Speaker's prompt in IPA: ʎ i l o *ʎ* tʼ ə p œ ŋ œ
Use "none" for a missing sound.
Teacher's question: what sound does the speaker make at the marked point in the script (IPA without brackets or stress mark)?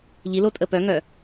none